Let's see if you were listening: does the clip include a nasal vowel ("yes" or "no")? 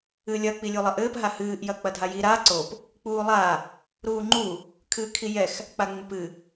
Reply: no